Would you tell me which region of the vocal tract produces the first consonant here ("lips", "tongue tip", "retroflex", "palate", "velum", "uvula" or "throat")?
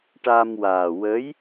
retroflex